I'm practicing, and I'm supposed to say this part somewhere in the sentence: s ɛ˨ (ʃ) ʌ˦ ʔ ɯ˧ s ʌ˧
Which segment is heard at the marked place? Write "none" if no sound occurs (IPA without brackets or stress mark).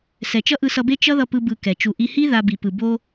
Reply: t͡ʃ